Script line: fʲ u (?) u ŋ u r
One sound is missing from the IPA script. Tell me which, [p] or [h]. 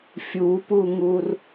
p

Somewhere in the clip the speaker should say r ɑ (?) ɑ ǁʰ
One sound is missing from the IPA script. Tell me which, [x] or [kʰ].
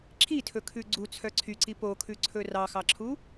x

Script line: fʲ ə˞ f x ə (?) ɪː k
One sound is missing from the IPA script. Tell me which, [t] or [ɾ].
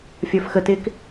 t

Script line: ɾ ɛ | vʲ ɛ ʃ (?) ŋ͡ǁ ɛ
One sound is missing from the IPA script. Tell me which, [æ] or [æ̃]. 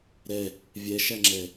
æ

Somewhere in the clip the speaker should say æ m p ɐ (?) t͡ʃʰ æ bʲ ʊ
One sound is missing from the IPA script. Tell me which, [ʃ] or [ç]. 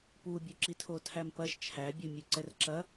ʃ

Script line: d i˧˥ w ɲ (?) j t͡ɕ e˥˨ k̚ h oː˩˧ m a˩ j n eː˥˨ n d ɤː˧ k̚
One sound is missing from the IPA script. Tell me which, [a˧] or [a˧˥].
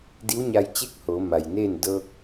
a˧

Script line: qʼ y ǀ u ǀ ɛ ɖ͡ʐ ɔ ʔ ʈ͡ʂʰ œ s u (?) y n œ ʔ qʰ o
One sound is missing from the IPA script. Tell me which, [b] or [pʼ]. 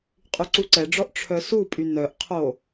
pʼ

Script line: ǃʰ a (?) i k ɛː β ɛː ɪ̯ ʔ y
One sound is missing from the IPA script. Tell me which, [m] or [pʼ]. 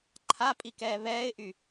pʼ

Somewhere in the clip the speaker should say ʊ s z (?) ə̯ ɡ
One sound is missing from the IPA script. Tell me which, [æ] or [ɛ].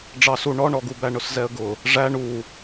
ɛ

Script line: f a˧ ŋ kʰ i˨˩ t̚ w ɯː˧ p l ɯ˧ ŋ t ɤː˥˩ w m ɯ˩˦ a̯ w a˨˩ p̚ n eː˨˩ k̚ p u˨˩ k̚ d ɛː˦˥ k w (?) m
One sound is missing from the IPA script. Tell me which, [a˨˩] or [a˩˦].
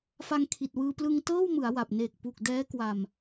a˨˩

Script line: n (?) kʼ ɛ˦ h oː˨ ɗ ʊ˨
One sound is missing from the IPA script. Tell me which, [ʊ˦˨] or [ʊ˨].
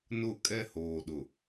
ʊ˦˨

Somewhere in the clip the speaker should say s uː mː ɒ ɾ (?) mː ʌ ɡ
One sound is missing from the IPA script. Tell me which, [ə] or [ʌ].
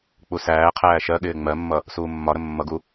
ə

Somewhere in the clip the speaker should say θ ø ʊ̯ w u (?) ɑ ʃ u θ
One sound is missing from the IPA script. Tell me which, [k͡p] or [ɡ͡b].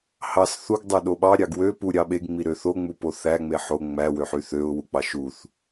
k͡p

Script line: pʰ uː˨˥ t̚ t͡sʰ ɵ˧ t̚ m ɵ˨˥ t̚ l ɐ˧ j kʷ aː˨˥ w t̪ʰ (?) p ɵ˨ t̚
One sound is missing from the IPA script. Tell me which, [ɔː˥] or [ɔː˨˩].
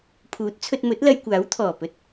ɔː˨˩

